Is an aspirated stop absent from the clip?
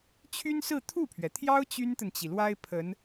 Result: no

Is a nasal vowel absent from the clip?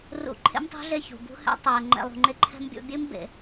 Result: yes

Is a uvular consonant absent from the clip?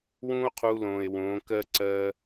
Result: no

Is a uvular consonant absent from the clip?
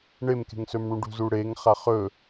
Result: no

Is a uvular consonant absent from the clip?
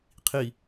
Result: no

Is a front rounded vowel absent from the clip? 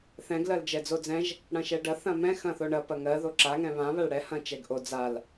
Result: yes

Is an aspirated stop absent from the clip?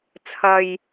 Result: no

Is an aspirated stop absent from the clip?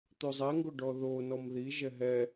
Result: yes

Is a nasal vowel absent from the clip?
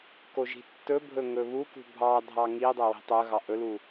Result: yes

